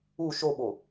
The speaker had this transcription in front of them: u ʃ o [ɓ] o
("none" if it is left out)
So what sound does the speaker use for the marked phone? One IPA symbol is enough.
ɓ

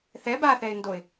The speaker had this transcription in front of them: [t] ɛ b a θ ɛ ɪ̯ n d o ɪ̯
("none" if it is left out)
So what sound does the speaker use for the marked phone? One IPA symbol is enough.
θ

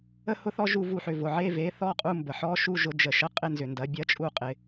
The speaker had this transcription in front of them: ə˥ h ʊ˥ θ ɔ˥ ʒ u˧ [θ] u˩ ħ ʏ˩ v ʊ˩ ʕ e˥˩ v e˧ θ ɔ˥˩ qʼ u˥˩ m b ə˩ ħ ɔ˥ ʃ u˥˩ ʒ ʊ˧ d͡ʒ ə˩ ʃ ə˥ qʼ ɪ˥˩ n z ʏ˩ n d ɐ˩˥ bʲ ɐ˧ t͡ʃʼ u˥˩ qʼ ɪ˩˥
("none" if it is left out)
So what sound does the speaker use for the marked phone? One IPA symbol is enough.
v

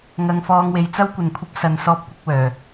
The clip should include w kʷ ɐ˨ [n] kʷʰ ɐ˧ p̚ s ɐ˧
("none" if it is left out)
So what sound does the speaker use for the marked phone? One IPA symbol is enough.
n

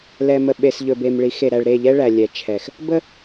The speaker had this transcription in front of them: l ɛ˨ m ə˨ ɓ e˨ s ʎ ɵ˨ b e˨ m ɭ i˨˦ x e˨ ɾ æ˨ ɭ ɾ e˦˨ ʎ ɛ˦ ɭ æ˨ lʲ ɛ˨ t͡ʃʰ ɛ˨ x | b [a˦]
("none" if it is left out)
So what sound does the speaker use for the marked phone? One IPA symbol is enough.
ə˦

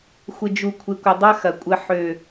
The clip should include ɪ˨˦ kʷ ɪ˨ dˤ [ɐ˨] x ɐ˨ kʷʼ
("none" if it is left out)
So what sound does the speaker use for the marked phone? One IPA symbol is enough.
ɐ˦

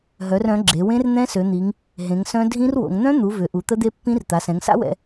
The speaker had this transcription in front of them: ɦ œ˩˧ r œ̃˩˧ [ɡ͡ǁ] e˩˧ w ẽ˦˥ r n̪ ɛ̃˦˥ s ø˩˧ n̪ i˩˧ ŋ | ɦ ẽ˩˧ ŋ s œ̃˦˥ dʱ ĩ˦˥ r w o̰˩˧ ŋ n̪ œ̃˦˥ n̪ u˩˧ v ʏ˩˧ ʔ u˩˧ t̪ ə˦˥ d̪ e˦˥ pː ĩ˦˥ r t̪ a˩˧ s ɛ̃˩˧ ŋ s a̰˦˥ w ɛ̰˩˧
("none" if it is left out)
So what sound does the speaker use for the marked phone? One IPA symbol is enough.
ɡ͡ǁ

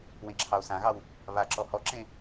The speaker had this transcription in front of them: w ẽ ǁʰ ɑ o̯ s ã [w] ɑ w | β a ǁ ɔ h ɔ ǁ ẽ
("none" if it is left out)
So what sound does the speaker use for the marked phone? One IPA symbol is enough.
ɣ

